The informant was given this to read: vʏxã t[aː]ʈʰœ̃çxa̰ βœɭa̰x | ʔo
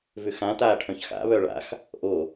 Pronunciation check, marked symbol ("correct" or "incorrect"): correct